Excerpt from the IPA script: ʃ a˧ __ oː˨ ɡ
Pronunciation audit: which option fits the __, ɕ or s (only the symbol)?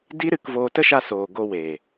s